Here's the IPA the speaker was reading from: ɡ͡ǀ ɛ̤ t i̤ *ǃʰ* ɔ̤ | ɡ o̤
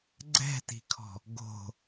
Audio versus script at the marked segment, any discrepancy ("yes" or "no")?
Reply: yes